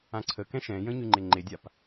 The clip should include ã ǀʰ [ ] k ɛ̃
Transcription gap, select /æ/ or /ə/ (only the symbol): ə